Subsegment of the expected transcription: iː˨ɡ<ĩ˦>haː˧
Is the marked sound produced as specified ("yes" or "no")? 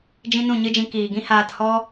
yes